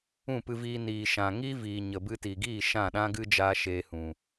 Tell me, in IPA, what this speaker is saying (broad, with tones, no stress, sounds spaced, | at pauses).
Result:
ũ˦˨ p ɨ˧ v iː˧ n iː˨ ʃ ã˨ ŋ i˦ v iː˨ ɲ ə˨ b ɨ˧ t i˨ ɡ iː˦˨ ʃ ã˦˨ ɗ ã˦ ɡ ɨ˦ d͡ʒ aː˧ ʃ eː˧ h ũ˨